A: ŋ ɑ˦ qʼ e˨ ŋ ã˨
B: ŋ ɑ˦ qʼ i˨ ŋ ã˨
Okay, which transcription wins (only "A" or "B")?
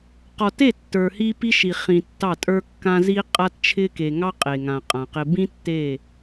A